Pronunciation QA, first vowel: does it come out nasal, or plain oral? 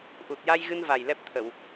oral